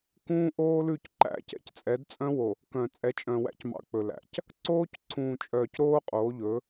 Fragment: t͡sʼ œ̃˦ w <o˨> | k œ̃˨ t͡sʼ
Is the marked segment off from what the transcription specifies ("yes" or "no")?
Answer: no